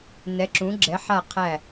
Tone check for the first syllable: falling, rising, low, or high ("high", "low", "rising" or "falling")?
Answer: rising